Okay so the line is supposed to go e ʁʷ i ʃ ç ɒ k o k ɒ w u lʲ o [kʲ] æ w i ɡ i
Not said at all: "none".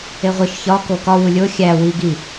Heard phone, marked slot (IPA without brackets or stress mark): xʲ